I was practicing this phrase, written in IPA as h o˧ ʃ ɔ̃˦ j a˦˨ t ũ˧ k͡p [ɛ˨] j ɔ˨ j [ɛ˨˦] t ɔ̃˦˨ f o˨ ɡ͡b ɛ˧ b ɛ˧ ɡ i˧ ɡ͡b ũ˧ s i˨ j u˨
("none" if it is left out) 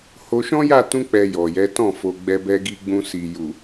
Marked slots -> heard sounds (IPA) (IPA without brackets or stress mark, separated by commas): ɛ˨, ɛ˨˦